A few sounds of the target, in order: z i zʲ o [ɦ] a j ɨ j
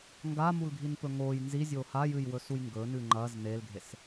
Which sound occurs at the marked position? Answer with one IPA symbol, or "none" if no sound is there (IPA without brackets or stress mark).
h